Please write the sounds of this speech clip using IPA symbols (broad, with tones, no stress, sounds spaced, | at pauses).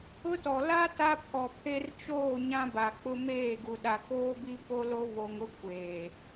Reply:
ʊ˦ t ɔ˨ l a˦ t a˦ pʰ ɔ˨ pʰ e˦ r t͡ʃ oː˦˨ ɲ ã˦ b a˨ k͡p ʊ˦ m eː˦˨ ɡ u˨ ɗ a˨ k oː˦ b i˦ p o˦ l o˦ β o˨ ŋ ʊ˦ kʷ eː˨